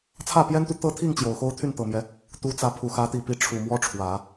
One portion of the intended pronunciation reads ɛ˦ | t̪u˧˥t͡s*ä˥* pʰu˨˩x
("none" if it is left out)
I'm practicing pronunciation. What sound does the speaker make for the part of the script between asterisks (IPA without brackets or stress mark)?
ä˧˥